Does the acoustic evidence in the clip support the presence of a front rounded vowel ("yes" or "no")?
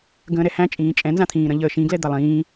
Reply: no